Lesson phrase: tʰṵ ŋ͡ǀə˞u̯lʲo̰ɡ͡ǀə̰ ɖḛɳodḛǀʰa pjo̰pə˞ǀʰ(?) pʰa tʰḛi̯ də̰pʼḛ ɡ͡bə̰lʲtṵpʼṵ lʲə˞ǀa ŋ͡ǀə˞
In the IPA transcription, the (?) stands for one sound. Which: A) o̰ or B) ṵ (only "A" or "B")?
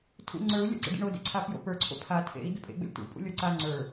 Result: A